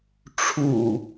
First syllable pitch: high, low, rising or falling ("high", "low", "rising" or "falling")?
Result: low